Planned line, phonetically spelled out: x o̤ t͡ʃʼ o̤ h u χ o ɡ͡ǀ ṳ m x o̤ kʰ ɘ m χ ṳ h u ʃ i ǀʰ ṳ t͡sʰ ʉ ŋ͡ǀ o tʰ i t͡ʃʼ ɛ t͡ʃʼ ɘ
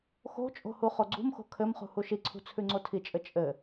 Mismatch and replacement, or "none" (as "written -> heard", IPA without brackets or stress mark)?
ɛ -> ɘ